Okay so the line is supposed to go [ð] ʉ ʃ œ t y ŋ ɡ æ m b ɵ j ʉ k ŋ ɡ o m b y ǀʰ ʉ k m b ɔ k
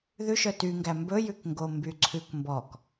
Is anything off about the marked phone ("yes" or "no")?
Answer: no